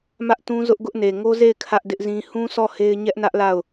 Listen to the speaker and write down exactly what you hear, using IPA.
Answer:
mä˦ʔtũ˦zʊ˦ʔ ɡʊ˦ʔne˨ ŋo˦ze˦˨ɪ̯ kʰä˦ʔdɪ˦ʔzĩ˦ hũ˦ sʰɔ˦˨he˦ɪ̯ ɲɛ˦ʔnä˦ʔ la˦˨ʊ̯

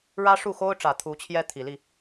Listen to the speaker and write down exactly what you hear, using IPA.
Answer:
ɻä˥ʂu˥˩xo˥ʊ̯ʈ͡ʂä˨˩ t̪ʰu˧˥t͡ɕʰjɛ˥ t̪ʰi˨˩li˥˩

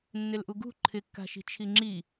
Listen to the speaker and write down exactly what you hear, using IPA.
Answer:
nːɪlʔuɡṳ ǃʰɪkːa̤ʃi̤ t͡ʃʰiŋ͡ǁi

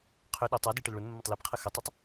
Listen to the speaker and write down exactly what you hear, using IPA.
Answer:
qʰʏ ɗʊ tˤadi ʈəlɭʊnmːətˤ lepqʰə xətˤotˤ

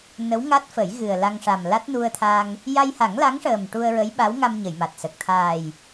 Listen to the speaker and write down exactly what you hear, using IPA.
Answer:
nə˧˥wŋa˦˥t̚fə˨˩˦j ɣɨ˨˩ə̯la˧ŋ ʂa˨˩mla˦˥t̚nu˧ə̯t̪ʰa˧ŋ | ja˧jha˨˩˦ŋla˧˥ŋʂəː˨˩m ʈu˧ə̯ɹə˧˥j ɓa˧˥wŋa˧mɲə˨˩˨j ma˨˩t̚sə˨˩k̚ t̪ʰaː˨˩j

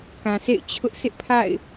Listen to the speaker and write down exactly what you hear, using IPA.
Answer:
kã˨sḛ˦˨ɪ̯ t͡ɕʰʊ˦ʔ sɪ˦ʔpʰa̰˦˨ɪ̯

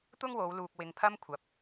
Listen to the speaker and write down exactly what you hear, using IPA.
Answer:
t̪ʊ˥ŋwo˨˧w luː˧k̚wɪ˧ŋpʰɐ˥m kʷʰɐ˨˥p̚

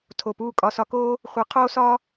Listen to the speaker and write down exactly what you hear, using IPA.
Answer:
tʰo˨puː˦˨ kʼɒ˨sɒ˨˦koː˦ | χʷe˨˦qʰoː˦sɒː˦

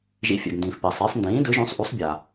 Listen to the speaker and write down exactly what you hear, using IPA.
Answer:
ʒḭ˩˥fʲɛ̰˩ɡndĩː˩f pɛ˩sˤɪː˩˥sˤ ndĩː˩˥dɯ˩˥ʒũ˩˥sˤ ʔu˩˥sˤbʲa˩

